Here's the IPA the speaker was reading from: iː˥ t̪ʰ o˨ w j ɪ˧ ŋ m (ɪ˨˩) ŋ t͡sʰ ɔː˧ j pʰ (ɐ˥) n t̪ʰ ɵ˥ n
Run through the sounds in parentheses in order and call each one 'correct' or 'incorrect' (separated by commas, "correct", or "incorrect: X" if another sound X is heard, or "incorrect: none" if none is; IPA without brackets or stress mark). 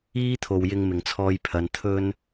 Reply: correct, incorrect: ɐ˨˧